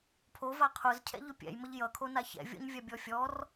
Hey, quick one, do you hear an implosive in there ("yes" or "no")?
no